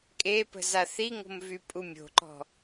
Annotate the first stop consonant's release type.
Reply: ejective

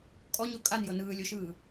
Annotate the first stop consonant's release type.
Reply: ejective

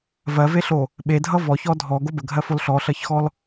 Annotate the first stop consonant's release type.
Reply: implosive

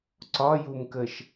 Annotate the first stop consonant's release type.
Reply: click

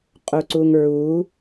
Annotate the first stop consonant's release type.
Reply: ejective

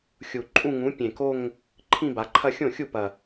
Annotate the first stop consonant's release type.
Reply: click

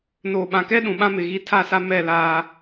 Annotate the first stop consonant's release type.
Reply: implosive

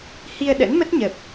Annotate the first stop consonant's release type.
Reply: implosive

